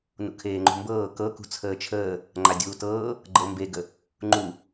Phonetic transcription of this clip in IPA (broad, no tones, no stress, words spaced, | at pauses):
nṵkʰeːŋ͡ǃṳmbɤː kɤ kṳt͡sʰəːt͡ʃʰəː | ŋ͡ǃadʲuːtɤː | ɡ͡ǃɤmbeɡə | ŋ͡ǃu